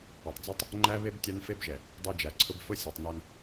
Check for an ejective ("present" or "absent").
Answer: absent